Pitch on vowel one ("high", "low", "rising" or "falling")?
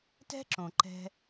high